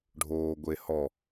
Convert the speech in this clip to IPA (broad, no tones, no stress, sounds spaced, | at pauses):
ɖʱ oː ɡʷ e h ɔ